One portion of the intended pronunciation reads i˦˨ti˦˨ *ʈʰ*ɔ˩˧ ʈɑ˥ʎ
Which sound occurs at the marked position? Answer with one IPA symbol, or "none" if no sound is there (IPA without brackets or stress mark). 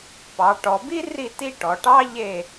ʈ